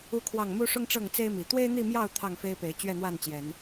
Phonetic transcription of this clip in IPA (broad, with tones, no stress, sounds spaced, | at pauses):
u˦ kʰ w ɑ˥˨ ŋ m u˦ ʂ ʊ˦ ŋ ʈ͡ʂ ɤ˥˨ ŋ t͡s e˦ ɪ̯ m i˨˩ t̪ w e˦ ɪ̯ n̪ i˥˨ m j ɑ˥˨ ʊ̯ t̪ʰ ɑ˥˨ ŋ f e˦ ɪ̯ p e˨˦ ɪ̯ t͡ɕ ɥ ɛ˥˨ n̪ w a˥˨ n t͡ɕ j ɛ˨˦ n